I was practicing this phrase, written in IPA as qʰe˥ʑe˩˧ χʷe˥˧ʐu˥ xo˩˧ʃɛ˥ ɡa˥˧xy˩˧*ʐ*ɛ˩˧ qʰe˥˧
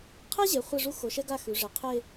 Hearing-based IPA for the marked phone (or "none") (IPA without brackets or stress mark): ʐ